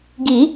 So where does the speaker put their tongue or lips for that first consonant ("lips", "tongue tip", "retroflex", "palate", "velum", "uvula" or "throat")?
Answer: velum